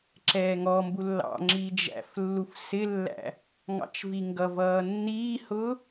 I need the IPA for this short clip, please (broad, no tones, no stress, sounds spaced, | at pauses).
ǁ ɛː ŋ ɔ m b u lː ɑ̰ ŋ͡ǁ iː d͡ʒ æ̰ f lː u f s ɪ lː æ̰ | ŋ ɑ̰ t͡ʃ v i ŋ ɡ ʌ v ʌː nː iː h ʊ